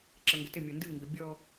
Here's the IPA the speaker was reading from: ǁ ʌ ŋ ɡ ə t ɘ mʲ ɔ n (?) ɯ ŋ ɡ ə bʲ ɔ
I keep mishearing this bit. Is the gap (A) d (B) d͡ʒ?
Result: A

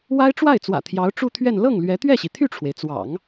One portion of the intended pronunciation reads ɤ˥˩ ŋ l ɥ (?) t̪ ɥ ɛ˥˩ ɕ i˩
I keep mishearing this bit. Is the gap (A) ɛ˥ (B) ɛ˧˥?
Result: B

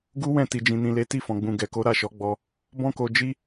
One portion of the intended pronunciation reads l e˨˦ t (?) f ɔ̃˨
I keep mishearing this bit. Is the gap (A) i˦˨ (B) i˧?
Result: A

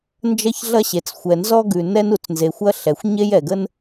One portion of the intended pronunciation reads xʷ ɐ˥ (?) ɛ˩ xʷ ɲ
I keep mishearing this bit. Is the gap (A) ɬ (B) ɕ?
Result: A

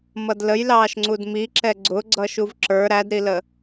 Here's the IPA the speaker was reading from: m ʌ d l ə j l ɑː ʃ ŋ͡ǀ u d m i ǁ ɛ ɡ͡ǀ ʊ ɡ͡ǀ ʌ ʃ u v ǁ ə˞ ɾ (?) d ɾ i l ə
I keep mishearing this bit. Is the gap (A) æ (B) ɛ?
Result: A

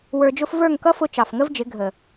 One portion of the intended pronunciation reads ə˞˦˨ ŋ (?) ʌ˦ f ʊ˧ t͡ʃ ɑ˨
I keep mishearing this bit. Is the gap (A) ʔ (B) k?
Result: B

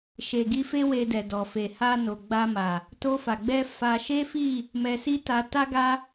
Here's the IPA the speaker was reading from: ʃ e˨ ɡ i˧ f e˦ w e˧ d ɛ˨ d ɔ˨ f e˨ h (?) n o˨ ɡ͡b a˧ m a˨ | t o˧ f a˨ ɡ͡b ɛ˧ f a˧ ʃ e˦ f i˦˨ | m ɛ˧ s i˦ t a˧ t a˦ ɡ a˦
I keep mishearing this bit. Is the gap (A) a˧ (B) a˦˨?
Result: A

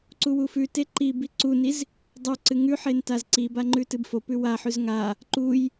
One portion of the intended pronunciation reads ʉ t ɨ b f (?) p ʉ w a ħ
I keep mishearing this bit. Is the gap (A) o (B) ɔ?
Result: A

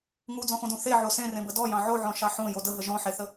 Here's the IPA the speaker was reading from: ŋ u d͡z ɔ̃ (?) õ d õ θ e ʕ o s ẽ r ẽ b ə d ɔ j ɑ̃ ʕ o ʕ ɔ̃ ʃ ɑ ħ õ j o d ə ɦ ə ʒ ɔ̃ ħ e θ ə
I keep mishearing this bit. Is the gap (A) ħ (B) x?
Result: B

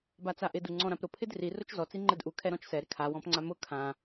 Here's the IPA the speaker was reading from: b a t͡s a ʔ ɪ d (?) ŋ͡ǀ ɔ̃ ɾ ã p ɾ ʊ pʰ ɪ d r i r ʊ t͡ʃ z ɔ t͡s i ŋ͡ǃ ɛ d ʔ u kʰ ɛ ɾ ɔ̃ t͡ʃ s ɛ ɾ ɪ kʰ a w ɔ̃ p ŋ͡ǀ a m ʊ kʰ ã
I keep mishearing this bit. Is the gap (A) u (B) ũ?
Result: A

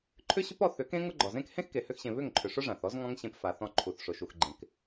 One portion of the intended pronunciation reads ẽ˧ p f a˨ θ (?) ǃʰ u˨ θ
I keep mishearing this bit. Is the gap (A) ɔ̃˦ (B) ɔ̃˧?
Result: B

